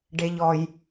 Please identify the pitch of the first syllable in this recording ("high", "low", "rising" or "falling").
low